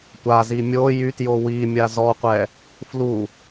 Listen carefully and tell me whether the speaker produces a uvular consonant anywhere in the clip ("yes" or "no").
yes